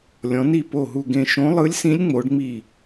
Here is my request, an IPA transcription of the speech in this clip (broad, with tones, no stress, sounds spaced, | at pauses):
lʲ ɔ̃˧˥ n i˥˧ p o˥˧ ɦ u˥˧ ɡ ẽ˥˧ ʃ õ˧˥ lˠ ɯ˧˥ lʲ s ĩ˧˥ lʲ ŋ͡m o˧˥ ɖ ŋ͡m i˥˧